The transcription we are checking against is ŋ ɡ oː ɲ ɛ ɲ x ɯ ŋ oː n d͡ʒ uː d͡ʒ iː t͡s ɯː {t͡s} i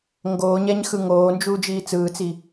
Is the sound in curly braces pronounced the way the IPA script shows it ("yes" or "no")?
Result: yes